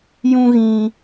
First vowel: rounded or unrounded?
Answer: rounded